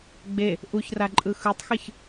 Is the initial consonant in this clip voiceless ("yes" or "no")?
no